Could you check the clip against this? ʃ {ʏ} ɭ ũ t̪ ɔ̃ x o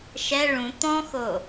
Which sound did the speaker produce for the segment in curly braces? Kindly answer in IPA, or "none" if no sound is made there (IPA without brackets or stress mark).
ɛ